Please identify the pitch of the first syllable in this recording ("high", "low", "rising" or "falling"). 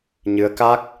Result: rising